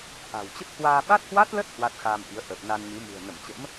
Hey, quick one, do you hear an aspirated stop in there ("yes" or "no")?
no